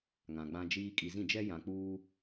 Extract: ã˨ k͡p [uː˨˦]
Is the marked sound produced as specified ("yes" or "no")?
no